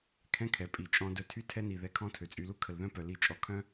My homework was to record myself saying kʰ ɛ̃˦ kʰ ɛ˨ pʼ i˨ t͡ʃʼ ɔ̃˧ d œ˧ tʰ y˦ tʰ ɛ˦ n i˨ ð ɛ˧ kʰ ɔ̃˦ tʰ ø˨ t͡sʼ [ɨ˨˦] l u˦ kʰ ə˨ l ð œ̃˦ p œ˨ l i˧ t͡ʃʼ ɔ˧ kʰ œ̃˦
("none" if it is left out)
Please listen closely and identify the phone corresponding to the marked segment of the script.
y˨˦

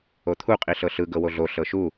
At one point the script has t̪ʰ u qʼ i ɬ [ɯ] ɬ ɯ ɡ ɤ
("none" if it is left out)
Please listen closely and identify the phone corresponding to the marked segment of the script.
ɤ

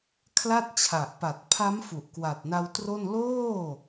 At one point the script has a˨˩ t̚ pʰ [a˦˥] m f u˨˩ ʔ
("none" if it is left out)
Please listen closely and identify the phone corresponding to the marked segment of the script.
a˦˥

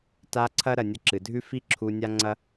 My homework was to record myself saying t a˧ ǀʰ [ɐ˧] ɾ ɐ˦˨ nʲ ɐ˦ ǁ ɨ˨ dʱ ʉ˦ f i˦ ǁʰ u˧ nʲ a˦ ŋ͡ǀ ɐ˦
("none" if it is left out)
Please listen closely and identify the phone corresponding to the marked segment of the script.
ɐ˦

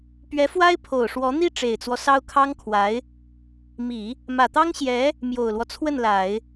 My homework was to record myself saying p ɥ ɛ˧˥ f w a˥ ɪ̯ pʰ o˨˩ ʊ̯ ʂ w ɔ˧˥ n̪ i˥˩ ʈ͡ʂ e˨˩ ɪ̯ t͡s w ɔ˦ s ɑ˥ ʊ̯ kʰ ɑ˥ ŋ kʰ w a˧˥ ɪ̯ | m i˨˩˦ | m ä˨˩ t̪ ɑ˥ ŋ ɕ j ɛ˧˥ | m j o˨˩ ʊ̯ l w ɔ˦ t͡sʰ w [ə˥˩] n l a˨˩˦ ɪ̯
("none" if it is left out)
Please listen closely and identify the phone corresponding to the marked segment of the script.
ə˥˩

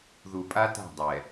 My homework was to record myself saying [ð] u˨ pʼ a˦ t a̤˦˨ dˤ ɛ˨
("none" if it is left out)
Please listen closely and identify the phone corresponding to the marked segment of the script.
ð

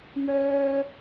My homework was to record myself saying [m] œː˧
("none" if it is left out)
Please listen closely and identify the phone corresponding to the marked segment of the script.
m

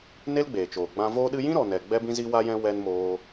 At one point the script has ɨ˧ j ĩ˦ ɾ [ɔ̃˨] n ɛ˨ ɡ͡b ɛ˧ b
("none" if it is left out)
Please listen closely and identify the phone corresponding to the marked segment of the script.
ɔ˨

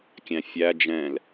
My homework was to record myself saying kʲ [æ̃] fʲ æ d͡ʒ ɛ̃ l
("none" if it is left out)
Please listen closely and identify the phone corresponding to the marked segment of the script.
æ̃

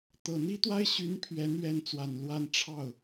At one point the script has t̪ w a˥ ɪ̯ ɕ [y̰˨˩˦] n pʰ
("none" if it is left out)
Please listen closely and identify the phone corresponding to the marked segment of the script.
y˧˥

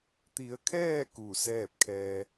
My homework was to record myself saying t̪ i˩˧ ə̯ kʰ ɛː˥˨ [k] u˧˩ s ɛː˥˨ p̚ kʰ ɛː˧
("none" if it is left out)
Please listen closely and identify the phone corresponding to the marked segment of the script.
k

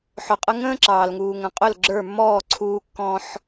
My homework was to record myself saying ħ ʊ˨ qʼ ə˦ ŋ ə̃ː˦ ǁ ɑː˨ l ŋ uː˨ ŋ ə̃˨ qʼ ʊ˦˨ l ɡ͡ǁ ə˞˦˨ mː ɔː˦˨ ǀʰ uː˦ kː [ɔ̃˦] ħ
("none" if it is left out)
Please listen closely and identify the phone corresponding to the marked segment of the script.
ɔ̃˦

